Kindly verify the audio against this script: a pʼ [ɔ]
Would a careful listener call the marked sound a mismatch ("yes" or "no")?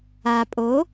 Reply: yes